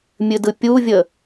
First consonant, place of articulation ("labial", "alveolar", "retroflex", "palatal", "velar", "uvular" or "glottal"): labial